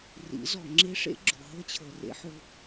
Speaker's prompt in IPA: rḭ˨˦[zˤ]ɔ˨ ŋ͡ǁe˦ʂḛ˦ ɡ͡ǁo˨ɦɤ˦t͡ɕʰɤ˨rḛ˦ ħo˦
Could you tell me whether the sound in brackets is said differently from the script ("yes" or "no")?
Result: yes